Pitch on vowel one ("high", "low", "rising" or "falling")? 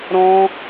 high